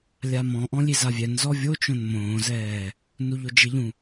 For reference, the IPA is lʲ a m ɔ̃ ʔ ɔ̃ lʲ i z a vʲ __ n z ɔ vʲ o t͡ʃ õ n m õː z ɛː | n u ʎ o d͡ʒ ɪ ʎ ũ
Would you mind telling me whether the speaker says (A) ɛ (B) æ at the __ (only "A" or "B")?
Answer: A